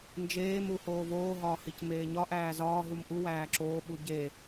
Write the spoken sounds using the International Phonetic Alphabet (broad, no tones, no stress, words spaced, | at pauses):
nd͡ʒeːmu hoːvoːɦɒː hicmeːɲɒʔæː zɒːɦum ʔuwæː ǁoːɓu ɟe